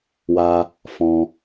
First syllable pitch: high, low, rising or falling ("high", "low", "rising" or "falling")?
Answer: high